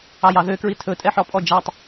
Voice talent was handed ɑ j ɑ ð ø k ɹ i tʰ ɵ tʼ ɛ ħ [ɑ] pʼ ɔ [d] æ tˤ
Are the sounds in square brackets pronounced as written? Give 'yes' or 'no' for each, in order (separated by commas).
no, no